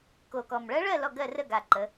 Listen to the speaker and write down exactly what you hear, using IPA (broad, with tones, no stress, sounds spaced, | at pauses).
k o˨˩ k ɔ˨˩ m ɭ ɜ˧˥ ɭ ɜ˥˨ l ɔ˥˨ ɡ ɜ˥˨ r ə˥˨ ɡ a˨˩ ǃ ə˩˧